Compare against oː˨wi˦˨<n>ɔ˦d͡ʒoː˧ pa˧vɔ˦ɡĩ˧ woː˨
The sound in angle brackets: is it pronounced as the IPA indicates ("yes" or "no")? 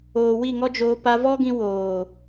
no